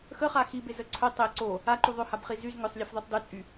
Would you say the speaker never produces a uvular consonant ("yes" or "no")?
no